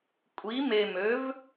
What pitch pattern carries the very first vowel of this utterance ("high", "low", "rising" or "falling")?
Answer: rising